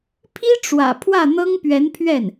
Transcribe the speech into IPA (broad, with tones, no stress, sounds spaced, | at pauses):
pʰ i˥ ʈ͡ʂ w ä̰˨˩ pʰ w ä˥˩ n̪ ɤ˥ ŋ p ɥ ɛ˧˥ n pʰ ɥ ɛ˥˩ n